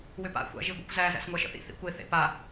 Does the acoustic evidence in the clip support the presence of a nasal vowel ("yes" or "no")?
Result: no